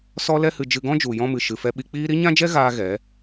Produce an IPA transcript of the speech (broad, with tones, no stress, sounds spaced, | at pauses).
s ɔ˦ l ɛ˦ h ɨ˧ d͡ʒ ɨ˧ ɡ ɔ̃˦ d͡ʒ u˨ j ɔ̃˧ m ɨ˨ ʃ ɨ˨ f ɛ˧ ɓ i˧ k͡p iː˦ ɾ i˦ ɲ ã˦ d͡ʒ ɛ˦ ɣ aː˦ ɣ ɛ˨˦